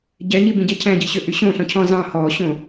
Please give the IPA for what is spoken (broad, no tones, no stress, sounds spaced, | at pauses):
ɟ ɛ ɲ i b ĩ ɟ ɛ cʰ æ̃ ɟ i ɕ ø ʔ y ɕ õ ɬ ɔ̃ cʰ ɔ̃ z ɑ̃ h ɔ ɕ õ